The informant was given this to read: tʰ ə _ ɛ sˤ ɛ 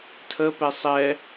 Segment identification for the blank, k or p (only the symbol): p